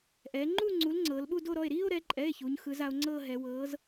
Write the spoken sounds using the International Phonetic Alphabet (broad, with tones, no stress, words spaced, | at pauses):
ʔɛ˩˧ŋ͡ǃu˥˧ ŋ͡ǀu˨˥lŋ͡ǀɤː˩˧l ɓu˥˧do˥˧ɾɔ˩˧˩e̯ ɾiː˥˧o̯ɾɛ˩˧ǃʼɛ˩˧˩e̯ çu˩˧ɲxɯ˩˧z a˩˧o̯ŋ͡ǀɤː˥˧ ɦɛ˩˧wɤː˨˥z